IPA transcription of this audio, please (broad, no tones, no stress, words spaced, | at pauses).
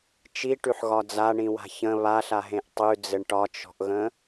t͡ʃiʈʉħɣɒ d͡zaɳĩwa̤ çə̃ βaɬaɦẽʔ tˤʉd͡zɘɳ ʈɒt͡ʃɔ̤ʔɣə̃